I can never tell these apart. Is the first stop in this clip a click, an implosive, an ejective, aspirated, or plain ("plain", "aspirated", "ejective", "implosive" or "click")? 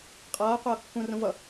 ejective